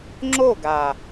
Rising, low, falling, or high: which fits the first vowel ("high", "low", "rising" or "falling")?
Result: falling